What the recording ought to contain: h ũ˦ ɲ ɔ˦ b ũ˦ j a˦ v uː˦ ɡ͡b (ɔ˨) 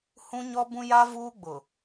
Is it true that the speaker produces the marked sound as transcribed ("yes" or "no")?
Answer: no